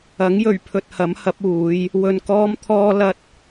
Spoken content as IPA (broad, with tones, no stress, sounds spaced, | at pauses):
ɐ˨˥ ŋ j ɵ˨˩ ɥ pʰ ɵ˧ t̚ h ɐ˨˥ m h ɐ˨˥ p̚ uː˨˥ j | w ɵ˧ n k ɔː˥ m t̪ʰ ɔː˥ l ɐ˥ t̚